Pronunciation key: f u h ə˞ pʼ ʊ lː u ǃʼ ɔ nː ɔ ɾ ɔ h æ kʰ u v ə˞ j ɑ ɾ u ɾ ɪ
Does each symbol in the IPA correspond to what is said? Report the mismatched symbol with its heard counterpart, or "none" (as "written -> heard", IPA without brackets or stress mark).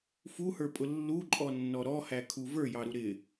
none